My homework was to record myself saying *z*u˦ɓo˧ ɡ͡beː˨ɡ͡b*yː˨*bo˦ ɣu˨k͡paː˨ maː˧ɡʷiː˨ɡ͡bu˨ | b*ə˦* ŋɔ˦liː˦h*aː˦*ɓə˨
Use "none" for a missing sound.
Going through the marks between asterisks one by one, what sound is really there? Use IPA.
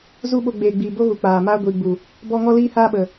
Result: z, iː˨, ɔ˦, aː˦

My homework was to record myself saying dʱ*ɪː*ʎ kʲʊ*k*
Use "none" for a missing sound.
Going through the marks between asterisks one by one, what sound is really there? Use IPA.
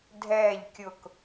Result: ɛː, k

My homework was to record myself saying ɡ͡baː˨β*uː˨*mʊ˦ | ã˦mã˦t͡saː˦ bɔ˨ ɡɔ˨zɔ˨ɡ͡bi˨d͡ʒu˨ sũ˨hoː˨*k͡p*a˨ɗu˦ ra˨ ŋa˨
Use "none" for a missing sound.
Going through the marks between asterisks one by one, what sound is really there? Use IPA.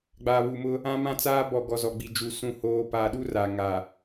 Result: u˨, p

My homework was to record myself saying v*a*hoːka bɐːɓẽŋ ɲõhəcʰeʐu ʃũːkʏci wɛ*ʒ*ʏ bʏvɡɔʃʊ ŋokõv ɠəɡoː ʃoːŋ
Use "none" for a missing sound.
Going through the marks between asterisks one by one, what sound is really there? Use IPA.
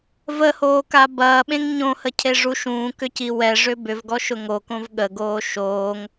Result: ə, ʐ

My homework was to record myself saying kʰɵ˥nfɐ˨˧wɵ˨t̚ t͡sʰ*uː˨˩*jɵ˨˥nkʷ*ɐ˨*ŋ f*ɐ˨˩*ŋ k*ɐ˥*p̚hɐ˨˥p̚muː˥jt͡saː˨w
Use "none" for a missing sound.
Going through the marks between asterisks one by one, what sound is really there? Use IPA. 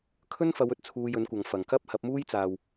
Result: uː˧, ɐ˨, ɐ˨˩, ɐ˥

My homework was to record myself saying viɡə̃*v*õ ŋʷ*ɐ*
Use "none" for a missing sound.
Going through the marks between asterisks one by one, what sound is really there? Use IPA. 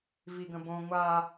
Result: b, a

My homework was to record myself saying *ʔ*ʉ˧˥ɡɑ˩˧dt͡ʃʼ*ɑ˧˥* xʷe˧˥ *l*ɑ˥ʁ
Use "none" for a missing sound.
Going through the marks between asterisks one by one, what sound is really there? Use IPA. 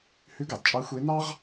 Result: h, ɑ˧˥, n

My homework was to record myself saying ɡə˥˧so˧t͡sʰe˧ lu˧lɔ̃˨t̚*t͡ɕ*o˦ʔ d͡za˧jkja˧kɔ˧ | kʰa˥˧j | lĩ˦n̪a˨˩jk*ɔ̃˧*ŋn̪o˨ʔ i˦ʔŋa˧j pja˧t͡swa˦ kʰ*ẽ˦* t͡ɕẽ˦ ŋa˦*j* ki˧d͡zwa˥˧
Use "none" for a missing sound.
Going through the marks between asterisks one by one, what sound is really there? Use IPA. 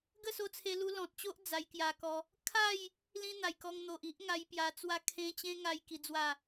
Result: t͡ɕ, ɔ˧, ẽ˦, j

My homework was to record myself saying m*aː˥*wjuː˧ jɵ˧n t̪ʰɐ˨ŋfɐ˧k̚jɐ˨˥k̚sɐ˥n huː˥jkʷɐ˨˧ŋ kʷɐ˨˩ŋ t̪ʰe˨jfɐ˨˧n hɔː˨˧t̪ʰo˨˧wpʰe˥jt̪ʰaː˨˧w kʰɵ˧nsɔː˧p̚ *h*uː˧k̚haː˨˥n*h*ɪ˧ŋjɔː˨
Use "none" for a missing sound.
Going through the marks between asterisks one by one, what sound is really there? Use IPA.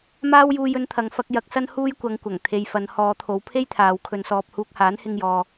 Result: aː˥, h, h

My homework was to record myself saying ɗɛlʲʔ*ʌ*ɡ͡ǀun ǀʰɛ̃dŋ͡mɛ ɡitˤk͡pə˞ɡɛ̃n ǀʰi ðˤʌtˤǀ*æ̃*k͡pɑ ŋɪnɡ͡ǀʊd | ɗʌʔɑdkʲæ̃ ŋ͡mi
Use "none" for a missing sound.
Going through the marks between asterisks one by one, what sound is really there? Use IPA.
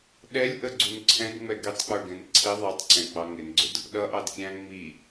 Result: ə, ɛ̃

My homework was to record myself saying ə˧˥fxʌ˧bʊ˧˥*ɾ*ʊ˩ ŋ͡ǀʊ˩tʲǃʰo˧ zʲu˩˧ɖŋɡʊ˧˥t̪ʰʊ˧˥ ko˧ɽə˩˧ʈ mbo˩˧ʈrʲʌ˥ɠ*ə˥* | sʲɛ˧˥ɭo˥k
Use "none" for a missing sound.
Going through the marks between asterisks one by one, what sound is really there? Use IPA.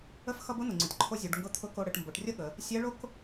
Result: n̪, ə˩˧

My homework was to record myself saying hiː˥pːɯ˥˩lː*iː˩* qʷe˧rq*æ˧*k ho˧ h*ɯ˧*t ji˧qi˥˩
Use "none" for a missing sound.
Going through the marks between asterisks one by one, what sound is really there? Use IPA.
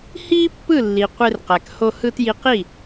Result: i˩, æ˩, ɯ˧

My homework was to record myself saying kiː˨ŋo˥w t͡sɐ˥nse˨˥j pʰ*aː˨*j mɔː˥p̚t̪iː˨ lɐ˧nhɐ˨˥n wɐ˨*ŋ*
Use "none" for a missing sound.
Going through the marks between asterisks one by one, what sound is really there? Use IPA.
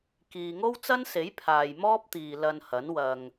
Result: aː˨, ŋ

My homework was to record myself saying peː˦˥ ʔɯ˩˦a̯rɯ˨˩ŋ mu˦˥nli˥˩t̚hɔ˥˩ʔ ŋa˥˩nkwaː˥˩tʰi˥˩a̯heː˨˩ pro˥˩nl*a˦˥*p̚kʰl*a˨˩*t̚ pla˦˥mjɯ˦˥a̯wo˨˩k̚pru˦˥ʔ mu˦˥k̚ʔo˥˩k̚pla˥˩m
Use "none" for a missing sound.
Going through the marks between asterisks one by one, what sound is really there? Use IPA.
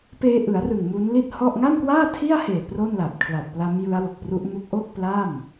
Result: a˨˩, a˨˩

